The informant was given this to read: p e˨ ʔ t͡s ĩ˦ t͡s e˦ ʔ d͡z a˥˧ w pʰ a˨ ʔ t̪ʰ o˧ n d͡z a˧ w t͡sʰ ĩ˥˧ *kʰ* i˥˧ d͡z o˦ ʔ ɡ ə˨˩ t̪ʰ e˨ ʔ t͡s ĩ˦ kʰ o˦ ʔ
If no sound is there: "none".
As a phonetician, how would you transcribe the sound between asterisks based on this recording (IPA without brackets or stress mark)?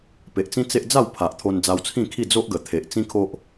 kʰ